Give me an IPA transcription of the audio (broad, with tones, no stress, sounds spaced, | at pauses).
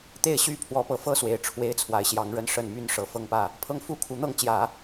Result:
t̪ e˥˩ ɪ̯ ɕ y˥ pʰ w ɔ˧˥ p ɤ˨˩ f ɤ˥ s w e˨˩ ɪ̯ ʈ͡ʂʰ w e˥ ɪ̯ t͡sʰ w a˧˥ ɪ̯ ɕ j ɑ˧˥ ŋ ɻ ə˥˧ n ʂ ə˥˩ n m y˥ n ʂ ɤ˨˩ f ɤ˥˧ ŋ p ä˥˩ | pʰ ɤ˥ ŋ f u˥ kʰ u˧˥ n̪ ɤ˥˩ ŋ t͡ɕ j ä˨˩˦